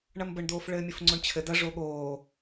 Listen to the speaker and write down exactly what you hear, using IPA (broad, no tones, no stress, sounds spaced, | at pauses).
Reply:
ɳ ɐ m b ə ɳ d oː f ɭ ɘː mʲ ɘ f ŋ͡ǀ o ɳ t͡ɕʰ ɘ d ɐ ʐ o ɠ oː